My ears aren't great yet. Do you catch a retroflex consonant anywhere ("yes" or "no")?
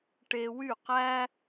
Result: yes